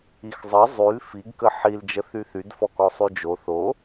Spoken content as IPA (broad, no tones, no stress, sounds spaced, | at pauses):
i x zˤ ə zˤ y l f i ɡ k ə ħ i l d͡ʒ ə θ y θ y d f ɔ k ɔ sˤ y d͡ʒ o θ o